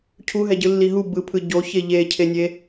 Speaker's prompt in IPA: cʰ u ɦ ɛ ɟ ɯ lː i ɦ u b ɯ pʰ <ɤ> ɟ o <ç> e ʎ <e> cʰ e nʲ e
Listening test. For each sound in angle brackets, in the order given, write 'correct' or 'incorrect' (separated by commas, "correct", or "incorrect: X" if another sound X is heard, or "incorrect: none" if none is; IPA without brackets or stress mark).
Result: incorrect: ɯ, correct, correct